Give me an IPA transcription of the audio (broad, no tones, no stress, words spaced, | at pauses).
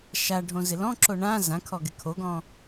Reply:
ʃaɖʱõzɪ lɔ̃ǁo ɳã zãkʰɔɡɪ kʰoɡɔ̃